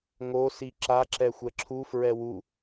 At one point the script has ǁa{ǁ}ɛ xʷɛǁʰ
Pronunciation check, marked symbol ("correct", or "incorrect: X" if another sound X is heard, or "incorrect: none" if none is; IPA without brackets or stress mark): correct